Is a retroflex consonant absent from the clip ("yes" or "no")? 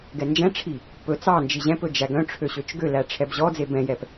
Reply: no